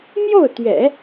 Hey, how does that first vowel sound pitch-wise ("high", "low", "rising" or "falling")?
falling